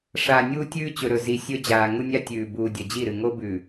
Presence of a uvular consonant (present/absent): absent